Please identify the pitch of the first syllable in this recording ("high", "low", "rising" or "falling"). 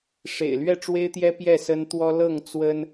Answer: low